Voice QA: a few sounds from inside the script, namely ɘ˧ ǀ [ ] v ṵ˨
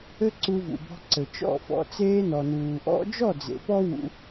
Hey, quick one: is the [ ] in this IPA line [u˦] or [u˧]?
u˧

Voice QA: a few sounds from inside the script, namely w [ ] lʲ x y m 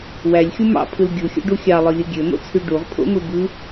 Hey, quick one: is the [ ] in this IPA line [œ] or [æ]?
æ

